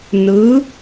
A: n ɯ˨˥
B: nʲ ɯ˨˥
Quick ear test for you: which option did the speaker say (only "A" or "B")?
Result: A